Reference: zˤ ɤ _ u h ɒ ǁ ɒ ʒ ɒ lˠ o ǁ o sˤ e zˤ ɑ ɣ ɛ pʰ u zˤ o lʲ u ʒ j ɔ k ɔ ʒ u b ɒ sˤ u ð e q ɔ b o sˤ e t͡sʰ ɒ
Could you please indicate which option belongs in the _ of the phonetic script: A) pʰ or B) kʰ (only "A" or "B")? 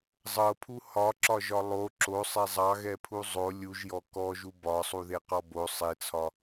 A